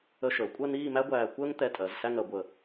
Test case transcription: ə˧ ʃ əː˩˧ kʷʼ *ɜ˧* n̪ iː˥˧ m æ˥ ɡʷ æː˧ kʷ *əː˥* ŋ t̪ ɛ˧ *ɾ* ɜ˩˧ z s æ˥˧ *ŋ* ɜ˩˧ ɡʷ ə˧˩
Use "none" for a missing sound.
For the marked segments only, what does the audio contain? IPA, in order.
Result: ɜ˥˧, əː˥, tʼ, ŋ

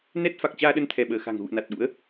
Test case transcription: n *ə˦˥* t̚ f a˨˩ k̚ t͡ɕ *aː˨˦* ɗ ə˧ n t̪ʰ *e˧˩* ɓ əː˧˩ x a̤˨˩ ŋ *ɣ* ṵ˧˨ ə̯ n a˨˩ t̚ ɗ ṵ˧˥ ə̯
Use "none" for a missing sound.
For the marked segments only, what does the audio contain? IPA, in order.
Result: ɛ˦˥, aː˧, ɛ˧˩, ɣ

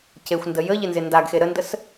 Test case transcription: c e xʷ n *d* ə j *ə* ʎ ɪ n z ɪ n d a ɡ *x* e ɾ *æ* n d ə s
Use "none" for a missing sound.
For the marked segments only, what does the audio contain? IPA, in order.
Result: d, ə, x, ə

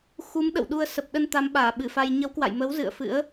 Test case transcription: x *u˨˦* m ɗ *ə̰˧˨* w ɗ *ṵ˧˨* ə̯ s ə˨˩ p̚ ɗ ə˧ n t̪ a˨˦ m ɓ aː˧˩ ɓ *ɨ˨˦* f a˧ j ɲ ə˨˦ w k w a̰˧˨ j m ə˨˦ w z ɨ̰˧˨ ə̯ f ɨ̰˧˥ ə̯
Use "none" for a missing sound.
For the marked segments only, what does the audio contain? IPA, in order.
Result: u˨˦, ə̰˧˨, u˧, ɨ˧˩

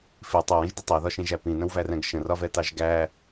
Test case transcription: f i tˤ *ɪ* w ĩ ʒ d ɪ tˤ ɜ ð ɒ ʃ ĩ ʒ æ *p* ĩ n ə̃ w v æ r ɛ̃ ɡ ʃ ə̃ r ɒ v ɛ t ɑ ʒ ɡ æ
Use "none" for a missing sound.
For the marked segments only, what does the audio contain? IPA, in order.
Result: ɛ, p

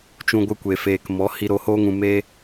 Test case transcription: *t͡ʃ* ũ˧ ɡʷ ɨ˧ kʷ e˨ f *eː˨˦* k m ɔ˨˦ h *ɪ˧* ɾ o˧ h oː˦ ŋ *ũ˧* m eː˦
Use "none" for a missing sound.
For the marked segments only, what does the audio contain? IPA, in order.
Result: t͡ʃ, eː˨, i˧, ũ˧

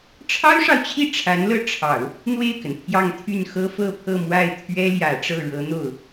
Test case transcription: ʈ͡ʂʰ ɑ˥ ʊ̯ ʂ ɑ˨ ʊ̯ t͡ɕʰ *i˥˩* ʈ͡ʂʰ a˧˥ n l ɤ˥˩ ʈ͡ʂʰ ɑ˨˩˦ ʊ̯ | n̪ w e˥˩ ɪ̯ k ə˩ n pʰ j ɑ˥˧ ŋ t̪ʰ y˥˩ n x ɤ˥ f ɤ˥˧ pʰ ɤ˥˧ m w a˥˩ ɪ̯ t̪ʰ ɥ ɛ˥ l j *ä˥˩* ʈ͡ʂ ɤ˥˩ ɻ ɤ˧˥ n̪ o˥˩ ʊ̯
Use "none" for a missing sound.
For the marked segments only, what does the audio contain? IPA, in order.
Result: i˥˩, ä˨˩

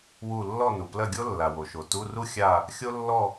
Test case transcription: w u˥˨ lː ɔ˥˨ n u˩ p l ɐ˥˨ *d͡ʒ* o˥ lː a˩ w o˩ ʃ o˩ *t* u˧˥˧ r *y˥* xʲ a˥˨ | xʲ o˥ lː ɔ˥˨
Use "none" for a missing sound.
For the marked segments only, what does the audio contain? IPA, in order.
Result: ɡʲ, t, u˥

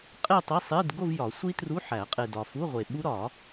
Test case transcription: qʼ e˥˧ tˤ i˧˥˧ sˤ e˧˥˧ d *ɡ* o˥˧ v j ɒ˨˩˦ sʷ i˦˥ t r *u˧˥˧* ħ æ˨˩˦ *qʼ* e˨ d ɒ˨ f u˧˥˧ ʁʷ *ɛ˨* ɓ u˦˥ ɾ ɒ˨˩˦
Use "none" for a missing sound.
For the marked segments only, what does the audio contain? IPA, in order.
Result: ɡ, u˧˥˧, qʼ, e˨

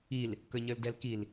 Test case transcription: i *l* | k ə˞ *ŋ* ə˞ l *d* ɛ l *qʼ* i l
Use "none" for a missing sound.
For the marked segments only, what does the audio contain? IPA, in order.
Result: l, ɲ, d, k

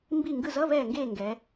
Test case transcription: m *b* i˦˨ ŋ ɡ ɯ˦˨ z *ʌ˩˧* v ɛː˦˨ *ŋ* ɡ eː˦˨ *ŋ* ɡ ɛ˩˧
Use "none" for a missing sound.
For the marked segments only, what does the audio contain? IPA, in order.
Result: b, ʌ˧˥˧, ŋ, ŋ

